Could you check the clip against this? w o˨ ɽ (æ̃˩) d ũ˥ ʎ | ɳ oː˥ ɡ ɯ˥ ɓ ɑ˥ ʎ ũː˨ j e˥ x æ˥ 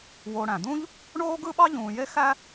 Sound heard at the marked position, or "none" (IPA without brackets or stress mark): æ̃˩